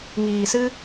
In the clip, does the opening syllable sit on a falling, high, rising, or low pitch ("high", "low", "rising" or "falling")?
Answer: low